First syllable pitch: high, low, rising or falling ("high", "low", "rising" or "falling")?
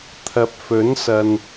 low